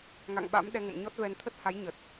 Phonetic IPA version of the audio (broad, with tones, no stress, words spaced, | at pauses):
ŋa̰˧˨ŋɓa̰˧˥m ɗɛ˧ŋə̰˧˨mɲɔ˦˥t̚vɛ˧n t̪ʰə˦˥t̚ha˨˦j ɲə˨˩t̚